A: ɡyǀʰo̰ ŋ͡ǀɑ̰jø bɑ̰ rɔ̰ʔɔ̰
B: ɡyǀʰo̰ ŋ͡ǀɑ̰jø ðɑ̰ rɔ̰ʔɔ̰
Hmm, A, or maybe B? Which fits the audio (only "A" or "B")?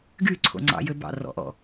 A